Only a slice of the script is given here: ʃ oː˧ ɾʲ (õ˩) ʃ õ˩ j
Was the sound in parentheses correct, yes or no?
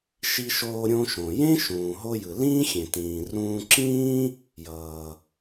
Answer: no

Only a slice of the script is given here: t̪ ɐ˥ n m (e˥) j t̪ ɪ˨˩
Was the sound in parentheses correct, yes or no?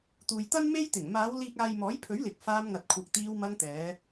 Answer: yes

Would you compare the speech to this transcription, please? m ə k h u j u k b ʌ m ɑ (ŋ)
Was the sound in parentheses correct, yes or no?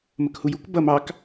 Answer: no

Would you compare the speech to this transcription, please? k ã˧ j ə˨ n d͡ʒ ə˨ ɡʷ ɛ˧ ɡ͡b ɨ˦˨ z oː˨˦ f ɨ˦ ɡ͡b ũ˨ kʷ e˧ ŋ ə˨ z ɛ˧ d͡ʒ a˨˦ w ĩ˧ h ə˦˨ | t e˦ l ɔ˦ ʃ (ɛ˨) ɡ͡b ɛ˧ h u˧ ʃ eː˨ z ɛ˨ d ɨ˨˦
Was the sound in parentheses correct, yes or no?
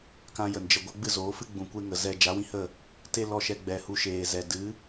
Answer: no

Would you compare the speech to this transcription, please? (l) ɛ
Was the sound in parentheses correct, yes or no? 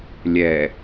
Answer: no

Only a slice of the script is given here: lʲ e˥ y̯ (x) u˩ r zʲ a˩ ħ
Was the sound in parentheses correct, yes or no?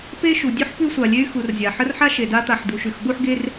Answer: yes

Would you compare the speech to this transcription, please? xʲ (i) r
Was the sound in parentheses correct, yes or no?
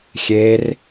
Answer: no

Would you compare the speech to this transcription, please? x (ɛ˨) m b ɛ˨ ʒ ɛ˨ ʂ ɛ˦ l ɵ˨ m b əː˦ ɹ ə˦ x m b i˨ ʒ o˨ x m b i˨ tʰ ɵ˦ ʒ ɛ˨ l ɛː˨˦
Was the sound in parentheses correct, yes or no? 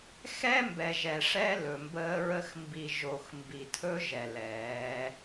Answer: no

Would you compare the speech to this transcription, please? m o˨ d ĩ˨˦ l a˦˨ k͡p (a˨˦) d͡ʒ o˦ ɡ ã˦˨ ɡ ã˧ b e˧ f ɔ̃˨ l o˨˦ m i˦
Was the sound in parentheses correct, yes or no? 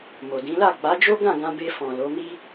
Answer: yes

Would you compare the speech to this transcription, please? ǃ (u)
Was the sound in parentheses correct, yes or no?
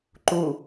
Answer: yes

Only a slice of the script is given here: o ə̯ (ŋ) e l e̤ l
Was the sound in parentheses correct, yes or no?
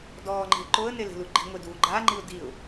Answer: no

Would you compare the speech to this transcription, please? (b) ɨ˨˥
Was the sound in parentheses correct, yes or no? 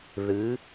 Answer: no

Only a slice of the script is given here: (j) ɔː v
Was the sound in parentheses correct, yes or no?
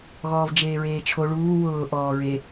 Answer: no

